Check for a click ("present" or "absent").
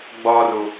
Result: absent